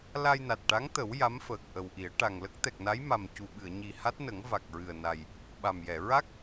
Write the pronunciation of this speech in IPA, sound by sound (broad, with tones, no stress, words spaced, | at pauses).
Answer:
la˧jna˨˩t̚ʈa˧˥ŋt̪ə˨˩˦w ja˧˥mfəː˨˩k̚ʔə˨˩wʔi˨˩˦ə̯ ʈa˨˩ŋlə˦˥k̚ t̪ɛ˨˩k̚na˧˥j ma˨˩mcu˨˩ɓɨ˨˩˨ə̯ ɲi˨˩ha˦˥t̚nə˨˩˦ŋ va˨˩k̚ ɹɨ˨˩ə̯na˨˩j | ɓa˨˩mjɛ˨˩˨ ɹa˦˥k̚